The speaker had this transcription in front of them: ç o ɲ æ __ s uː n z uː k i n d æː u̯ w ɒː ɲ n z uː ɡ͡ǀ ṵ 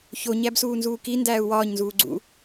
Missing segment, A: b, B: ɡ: A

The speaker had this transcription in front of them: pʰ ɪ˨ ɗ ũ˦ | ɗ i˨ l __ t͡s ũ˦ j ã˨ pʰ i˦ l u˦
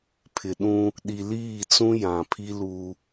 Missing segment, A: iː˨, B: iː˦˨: B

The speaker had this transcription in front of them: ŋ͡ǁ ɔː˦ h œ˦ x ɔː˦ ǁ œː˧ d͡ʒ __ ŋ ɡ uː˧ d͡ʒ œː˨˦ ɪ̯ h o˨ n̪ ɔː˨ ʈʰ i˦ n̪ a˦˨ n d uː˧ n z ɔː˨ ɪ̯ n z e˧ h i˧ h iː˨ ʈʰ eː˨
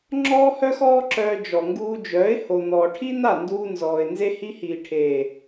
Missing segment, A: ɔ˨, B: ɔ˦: A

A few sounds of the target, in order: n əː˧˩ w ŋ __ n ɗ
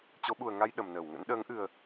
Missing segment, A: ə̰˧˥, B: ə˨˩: A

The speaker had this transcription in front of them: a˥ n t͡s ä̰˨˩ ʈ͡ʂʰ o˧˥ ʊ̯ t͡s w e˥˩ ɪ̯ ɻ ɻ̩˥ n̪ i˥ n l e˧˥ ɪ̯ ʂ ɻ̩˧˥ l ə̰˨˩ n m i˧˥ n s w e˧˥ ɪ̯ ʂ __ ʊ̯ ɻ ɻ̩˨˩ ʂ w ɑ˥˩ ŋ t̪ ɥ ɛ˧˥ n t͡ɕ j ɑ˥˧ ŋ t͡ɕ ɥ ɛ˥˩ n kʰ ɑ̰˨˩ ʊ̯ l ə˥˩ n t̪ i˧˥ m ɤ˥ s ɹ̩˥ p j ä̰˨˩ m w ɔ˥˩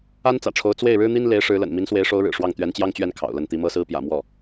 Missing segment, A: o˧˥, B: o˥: A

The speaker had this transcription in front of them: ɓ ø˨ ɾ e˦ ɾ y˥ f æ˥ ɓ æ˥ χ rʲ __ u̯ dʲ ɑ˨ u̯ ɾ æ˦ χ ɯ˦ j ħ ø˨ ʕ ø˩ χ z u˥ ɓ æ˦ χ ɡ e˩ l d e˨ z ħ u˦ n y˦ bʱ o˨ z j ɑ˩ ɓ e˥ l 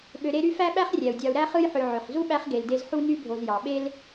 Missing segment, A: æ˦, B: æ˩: B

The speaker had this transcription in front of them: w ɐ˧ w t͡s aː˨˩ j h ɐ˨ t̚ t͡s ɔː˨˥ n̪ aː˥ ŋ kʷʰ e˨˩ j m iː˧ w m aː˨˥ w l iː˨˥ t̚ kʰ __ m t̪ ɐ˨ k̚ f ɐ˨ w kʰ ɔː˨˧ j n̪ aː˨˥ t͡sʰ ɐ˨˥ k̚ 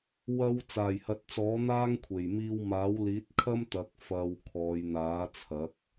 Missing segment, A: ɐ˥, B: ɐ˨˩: A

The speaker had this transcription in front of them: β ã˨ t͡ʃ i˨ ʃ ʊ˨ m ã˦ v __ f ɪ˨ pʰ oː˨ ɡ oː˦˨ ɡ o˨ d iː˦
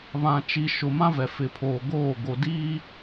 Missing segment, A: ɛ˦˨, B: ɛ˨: B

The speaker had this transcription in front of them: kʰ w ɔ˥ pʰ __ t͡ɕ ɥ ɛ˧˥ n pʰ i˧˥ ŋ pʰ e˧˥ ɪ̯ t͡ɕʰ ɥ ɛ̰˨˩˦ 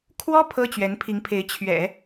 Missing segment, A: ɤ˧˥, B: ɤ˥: B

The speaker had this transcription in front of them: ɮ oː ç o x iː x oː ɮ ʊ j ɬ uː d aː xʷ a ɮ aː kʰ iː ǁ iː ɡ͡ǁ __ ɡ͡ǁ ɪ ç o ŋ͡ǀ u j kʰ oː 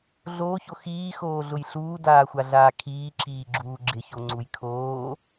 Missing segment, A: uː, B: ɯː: A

